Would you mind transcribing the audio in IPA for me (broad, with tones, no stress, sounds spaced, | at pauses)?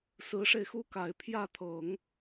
s ɹ̩˧˥ ʂ e˧ ɪ̯ x u˥ k a˨˩ ɪ̯ pʰ j ä˥˩ t̪ʰ ɤ˨˩˦ ŋ